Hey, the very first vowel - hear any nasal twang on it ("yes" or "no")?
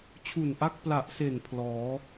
no